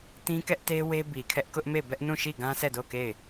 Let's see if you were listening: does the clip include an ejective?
no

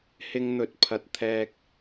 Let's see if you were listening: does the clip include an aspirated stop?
yes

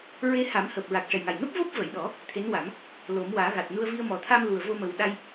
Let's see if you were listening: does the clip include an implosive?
yes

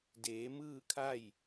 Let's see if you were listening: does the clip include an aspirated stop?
yes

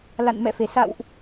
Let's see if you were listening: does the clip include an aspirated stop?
no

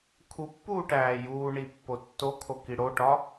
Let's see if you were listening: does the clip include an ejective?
no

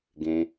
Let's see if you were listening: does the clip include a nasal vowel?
yes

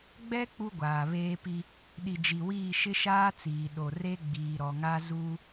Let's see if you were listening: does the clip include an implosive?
yes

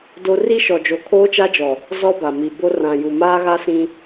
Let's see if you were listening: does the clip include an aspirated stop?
yes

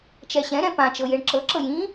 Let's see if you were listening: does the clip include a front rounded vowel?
no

